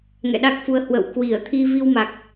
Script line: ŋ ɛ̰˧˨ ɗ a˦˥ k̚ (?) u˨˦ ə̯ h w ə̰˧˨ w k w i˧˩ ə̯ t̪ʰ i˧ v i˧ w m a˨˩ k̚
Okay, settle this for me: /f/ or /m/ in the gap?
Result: f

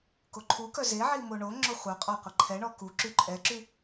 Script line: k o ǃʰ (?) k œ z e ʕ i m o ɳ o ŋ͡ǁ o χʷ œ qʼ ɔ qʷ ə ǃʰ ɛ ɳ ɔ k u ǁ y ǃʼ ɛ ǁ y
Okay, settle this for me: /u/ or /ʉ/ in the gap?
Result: u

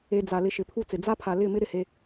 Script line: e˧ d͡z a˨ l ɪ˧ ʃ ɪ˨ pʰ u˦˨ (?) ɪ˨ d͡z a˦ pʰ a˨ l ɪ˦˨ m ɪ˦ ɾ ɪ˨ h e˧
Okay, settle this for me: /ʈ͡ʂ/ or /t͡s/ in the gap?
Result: t͡s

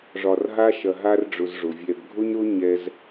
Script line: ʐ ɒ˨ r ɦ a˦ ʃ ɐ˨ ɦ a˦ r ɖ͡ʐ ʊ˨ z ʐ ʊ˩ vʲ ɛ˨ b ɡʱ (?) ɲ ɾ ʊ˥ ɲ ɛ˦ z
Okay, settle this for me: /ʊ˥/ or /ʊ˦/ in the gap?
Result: ʊ˥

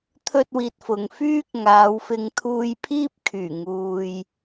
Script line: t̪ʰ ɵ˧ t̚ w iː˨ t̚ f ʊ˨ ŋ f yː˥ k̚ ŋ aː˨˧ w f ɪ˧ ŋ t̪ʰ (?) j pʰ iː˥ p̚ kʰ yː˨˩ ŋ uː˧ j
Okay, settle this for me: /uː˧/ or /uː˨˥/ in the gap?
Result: uː˧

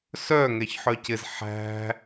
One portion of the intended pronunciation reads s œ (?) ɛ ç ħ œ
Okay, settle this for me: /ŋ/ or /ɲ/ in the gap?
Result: ŋ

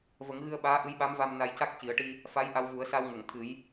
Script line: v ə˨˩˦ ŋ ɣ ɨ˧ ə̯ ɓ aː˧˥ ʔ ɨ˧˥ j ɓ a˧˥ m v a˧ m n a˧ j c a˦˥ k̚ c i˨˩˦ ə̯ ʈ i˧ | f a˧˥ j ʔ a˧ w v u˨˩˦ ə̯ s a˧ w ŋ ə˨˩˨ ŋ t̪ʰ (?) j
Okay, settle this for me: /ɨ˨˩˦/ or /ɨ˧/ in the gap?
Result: ɨ˨˩˦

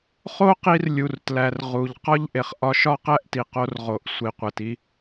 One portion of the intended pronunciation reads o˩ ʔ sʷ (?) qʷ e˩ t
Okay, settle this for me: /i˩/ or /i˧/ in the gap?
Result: i˩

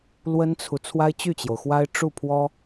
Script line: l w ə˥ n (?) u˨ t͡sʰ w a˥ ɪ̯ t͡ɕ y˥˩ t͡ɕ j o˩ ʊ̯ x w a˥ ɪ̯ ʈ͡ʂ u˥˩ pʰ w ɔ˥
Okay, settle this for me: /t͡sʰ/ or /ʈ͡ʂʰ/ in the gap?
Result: t͡sʰ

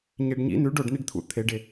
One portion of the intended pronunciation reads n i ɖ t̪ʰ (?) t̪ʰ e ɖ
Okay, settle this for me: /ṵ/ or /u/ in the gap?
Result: ṵ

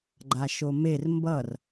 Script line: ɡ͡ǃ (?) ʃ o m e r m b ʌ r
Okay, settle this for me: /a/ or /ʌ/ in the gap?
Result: a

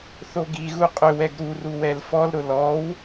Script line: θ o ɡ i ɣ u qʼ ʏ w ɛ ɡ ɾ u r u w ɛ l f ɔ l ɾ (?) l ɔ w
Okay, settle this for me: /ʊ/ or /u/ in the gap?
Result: ʊ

